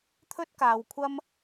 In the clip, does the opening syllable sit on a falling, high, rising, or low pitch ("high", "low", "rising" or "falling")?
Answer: high